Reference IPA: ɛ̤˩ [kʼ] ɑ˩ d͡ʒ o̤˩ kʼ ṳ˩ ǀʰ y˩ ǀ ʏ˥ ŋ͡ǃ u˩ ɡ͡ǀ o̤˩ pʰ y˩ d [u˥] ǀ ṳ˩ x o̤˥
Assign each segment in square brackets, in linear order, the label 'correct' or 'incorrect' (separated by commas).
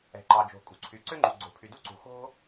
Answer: incorrect, correct